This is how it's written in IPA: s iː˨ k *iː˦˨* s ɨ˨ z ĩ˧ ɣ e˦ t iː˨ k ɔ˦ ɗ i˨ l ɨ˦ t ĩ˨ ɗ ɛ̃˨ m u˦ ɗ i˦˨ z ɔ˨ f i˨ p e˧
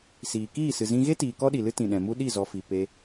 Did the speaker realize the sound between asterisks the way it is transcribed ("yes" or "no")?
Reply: yes